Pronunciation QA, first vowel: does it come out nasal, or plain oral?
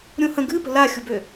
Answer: nasal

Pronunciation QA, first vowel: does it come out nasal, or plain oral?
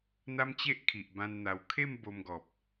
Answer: oral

